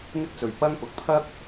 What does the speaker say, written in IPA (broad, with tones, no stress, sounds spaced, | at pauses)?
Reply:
ŋ ɪ˥ k̚ t͡s ɵ˨˩ ɥ p ɐ˥ ŋ p ʊ˨ k̚ pʰ ɐ˥ k̚